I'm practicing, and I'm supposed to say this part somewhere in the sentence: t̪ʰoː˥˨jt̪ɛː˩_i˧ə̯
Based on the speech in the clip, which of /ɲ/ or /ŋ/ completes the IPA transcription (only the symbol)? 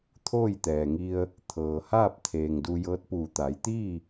ŋ